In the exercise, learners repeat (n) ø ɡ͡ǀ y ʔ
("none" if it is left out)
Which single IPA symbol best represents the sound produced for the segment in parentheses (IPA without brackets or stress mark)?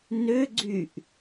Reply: n